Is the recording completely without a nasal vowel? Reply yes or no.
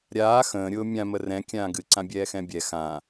no